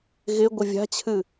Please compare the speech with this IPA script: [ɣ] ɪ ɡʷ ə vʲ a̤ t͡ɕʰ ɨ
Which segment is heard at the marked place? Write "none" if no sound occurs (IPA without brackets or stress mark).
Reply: ɣ